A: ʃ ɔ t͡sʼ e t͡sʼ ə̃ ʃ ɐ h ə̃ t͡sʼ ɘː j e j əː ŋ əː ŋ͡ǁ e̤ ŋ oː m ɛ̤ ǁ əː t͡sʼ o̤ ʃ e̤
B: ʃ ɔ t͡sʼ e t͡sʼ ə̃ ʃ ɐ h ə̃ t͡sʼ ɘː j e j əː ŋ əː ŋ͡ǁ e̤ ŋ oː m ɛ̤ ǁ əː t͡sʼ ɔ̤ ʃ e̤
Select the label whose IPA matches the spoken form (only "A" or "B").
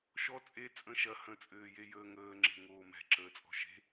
B